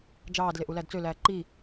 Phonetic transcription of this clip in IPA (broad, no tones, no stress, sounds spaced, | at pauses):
d͡ʒ ɑː d l e ʔ u l æ d t͡s ø l æː ǃ i